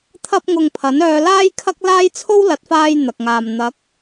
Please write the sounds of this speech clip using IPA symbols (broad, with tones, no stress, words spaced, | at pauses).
t̪ʰɐ˥p̚ŋʊ˧ŋpʰɐ˨˥n œː˧laː˥jkʰɐ˥k̚laː˥j t͡sʰo˥wlɐ˨˥t̚faː˧j n̪ɐ˨k̚ŋaː˨m n̪ɐ˨˥k̚